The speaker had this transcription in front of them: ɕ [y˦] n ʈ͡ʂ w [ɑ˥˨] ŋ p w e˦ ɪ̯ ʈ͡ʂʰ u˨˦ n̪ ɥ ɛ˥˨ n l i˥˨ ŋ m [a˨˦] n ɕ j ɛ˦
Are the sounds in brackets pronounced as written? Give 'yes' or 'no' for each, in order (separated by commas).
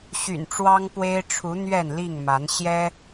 no, no, yes